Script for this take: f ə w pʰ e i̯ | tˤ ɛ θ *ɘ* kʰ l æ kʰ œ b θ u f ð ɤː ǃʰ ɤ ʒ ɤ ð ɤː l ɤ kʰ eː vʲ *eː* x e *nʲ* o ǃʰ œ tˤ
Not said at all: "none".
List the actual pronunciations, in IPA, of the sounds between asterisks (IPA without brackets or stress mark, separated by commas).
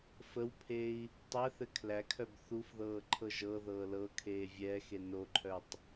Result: ɘ, ɛː, n